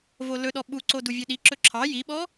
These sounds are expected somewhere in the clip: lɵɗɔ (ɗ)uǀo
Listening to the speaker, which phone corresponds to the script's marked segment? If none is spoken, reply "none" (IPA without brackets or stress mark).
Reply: ɓ